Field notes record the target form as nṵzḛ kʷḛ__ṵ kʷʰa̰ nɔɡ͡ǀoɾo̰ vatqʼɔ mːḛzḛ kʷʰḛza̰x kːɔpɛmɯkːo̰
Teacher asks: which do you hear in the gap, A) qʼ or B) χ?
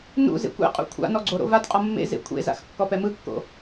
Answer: A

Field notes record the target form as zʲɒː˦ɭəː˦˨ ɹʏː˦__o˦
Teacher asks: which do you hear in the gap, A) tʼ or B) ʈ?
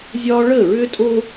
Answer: A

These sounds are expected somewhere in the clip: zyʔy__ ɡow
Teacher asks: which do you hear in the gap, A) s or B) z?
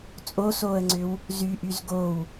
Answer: B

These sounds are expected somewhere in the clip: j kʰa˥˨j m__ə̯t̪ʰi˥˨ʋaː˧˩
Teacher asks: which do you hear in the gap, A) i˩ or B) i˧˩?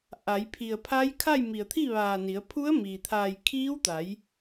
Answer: B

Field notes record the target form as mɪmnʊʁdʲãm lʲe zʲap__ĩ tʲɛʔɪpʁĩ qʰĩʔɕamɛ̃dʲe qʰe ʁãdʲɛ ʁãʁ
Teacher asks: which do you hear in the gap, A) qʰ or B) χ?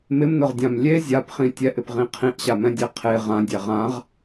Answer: B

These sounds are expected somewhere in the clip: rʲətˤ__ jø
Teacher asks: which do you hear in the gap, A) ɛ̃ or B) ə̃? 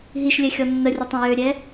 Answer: A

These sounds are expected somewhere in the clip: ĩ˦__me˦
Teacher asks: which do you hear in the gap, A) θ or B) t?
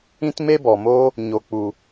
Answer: B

